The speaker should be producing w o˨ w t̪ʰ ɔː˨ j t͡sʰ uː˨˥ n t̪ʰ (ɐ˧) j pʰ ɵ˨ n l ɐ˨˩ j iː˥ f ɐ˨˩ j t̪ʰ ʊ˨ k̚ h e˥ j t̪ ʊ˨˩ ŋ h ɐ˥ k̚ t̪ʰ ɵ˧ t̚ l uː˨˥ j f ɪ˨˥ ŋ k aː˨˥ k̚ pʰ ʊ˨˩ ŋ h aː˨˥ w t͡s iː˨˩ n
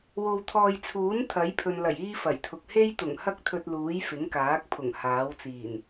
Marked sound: incorrect: ɐ˨˥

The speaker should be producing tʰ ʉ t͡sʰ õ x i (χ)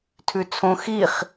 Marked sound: correct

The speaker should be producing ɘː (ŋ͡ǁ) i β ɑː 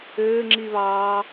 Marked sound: correct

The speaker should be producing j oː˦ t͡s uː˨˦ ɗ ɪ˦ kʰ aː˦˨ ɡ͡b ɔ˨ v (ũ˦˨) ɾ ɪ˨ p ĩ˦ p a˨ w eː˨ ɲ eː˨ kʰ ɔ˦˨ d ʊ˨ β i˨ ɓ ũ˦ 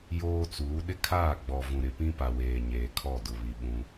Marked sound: incorrect: ũ˨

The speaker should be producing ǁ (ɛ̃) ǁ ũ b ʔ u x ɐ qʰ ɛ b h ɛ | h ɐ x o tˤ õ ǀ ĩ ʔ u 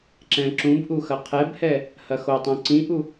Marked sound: correct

